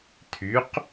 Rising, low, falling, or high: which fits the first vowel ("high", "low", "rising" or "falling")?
rising